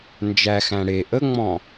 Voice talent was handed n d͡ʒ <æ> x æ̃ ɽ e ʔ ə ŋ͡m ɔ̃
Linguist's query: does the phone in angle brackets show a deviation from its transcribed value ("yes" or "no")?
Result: no